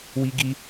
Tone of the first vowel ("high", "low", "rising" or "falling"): high